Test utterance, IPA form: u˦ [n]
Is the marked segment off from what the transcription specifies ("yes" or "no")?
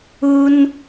no